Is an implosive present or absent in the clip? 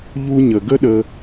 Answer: present